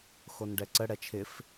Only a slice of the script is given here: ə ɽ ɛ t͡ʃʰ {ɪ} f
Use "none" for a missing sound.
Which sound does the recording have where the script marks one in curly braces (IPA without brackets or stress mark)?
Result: ɪ